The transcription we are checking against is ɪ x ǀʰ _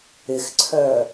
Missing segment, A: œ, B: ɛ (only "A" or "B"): A